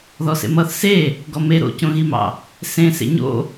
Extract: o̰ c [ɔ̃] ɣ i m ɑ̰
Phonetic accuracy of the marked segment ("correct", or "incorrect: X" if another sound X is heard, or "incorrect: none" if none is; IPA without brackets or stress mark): incorrect: õ